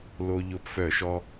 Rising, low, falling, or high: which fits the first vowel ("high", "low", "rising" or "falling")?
high